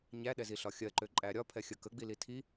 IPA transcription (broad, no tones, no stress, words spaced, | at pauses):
ɲæ ɗɛziɬɒxʲɜ ǃøǃʼæɾʲɒ pʰɛxʲə kə ɡ͡bilitʰi